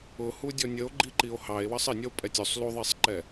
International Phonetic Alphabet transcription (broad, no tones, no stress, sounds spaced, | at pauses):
ʊ h u dʲ ɔ nʲ ə o̯ ɡ͡ǃ i ǃ i o̯ h ɑ e̯ w ʌ sˤ ɪ nʲ ʌ o̯ pʼ ɛ tʲ u sˤ l u ðˤ i sˤ ǃ ɛ